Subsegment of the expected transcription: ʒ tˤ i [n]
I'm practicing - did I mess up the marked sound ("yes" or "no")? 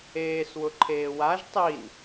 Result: no